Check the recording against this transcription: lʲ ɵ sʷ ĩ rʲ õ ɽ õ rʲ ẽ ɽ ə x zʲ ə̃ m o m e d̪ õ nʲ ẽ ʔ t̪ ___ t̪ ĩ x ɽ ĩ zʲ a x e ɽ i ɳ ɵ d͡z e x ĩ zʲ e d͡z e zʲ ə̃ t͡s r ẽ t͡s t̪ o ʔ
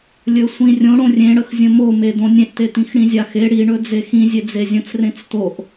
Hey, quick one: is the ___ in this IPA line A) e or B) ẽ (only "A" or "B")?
A